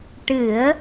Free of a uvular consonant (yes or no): yes